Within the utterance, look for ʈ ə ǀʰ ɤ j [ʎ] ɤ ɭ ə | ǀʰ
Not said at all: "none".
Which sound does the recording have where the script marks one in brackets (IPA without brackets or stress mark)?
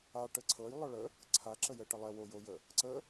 lˠ